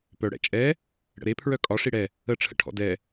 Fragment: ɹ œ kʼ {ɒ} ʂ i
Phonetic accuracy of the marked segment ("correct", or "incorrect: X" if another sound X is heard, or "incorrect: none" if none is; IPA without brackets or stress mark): correct